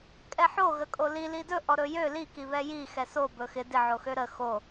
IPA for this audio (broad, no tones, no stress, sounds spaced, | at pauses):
kʼ ɛ ħ o ɣ ə kʼ o l i l i d ɵ ʔ ɔ ɾ ɵ j ø l i k i β ɛ j i x ɛ s o b ɵ x ɪ d ɪ ʕ o x ø ɾ ə x o